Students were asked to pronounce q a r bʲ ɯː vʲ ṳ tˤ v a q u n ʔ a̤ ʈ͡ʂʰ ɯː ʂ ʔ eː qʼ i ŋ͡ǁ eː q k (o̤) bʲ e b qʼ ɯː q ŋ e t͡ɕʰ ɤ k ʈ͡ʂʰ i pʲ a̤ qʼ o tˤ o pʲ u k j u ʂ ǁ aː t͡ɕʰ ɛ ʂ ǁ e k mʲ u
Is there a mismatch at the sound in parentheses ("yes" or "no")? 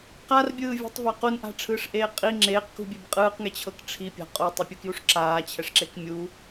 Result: yes